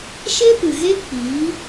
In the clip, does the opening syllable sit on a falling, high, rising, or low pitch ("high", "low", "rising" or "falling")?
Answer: high